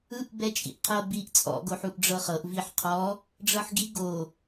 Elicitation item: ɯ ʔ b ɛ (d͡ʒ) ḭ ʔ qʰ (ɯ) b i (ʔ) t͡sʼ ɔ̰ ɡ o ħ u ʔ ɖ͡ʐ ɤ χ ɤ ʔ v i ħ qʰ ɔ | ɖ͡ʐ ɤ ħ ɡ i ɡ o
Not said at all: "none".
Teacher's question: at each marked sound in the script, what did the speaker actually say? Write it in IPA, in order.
t͡ʃʼ, ɤ, ʔ

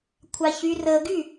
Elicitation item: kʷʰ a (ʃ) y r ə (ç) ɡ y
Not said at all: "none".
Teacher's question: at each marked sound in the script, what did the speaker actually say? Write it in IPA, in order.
ç, none

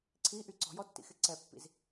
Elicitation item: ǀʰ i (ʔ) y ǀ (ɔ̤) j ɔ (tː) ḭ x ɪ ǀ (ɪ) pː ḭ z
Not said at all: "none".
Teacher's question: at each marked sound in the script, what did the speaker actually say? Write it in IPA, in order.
ʔ, ɔ̤, tː, ɛ

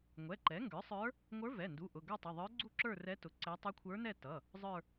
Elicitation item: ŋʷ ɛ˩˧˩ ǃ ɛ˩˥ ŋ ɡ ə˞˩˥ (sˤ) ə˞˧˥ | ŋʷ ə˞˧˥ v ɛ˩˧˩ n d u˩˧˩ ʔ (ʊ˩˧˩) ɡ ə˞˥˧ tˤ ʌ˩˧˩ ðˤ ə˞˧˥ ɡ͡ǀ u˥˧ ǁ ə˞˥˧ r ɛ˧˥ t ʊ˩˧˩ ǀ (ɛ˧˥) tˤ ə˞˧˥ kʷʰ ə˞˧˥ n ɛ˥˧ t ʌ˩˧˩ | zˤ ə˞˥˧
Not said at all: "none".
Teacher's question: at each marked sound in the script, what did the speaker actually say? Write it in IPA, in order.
sˤ, ʊ˩˧˩, ɛ˧˥

